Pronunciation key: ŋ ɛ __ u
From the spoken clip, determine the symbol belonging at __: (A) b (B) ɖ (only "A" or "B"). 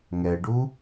B